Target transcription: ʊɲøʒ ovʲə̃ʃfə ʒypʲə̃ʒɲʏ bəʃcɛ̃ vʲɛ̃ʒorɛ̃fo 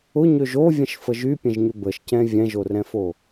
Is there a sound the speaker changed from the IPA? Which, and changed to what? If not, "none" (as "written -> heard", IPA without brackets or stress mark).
none